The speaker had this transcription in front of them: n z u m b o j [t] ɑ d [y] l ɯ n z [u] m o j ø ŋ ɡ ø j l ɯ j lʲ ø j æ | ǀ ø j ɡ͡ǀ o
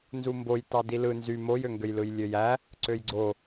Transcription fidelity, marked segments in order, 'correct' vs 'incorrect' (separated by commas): correct, incorrect, incorrect